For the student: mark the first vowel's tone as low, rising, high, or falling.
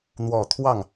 low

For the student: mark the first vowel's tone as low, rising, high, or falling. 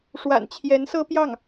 low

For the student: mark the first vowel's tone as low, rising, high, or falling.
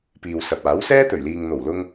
low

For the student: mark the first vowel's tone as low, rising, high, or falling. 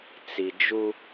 low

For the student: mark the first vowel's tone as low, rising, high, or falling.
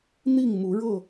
falling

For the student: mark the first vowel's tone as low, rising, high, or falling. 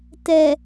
low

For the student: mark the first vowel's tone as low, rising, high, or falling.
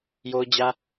high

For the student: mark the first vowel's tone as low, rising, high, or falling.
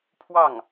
falling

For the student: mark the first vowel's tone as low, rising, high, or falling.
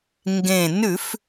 low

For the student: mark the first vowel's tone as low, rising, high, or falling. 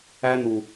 high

